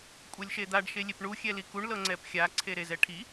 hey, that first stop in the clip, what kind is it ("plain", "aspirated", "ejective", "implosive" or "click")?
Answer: ejective